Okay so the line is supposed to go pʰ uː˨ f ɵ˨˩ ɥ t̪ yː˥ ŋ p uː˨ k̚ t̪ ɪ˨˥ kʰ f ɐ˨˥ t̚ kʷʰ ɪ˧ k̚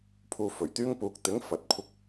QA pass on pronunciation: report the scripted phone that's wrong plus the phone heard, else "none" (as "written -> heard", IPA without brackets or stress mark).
kʰ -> ŋ